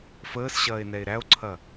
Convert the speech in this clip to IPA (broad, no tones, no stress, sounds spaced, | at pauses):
f əː s ɕ ɐː e̯ n ɛ e̯ ɾ æ o̯ ǀʰ ɐ